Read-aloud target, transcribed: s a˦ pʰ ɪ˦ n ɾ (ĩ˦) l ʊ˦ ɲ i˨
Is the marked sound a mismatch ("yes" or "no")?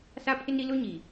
yes